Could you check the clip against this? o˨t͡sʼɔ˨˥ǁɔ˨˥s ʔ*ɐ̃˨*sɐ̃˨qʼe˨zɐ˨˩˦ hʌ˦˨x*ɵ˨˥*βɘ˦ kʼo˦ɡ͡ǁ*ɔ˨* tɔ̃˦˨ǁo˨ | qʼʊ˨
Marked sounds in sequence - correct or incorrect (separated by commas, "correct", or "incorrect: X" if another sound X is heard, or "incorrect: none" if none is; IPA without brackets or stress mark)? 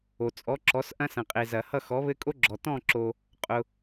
incorrect: ɐ̃˦, incorrect: ɔ˨˥, correct